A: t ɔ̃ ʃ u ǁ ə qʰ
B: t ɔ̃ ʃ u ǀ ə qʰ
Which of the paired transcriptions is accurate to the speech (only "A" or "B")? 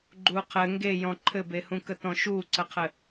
B